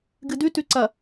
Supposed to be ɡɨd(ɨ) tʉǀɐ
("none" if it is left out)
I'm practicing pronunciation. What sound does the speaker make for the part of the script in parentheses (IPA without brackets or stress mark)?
ʉ